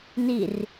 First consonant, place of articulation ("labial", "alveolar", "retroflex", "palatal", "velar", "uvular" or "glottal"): alveolar